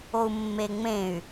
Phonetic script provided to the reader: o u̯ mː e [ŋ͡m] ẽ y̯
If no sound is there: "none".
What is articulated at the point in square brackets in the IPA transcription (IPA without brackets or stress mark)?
ŋ͡m